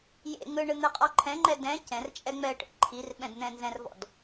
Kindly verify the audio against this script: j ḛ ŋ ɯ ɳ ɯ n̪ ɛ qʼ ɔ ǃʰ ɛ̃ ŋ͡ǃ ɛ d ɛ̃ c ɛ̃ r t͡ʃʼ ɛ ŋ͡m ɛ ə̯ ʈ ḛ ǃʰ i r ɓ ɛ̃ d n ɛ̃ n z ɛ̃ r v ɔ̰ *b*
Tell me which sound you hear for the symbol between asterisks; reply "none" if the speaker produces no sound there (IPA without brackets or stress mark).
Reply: d